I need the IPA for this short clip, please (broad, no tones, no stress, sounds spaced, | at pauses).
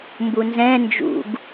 m b u n z ɛ̃ n d͡ʒ ṵ ɡ